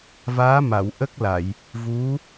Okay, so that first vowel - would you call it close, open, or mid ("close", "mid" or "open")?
open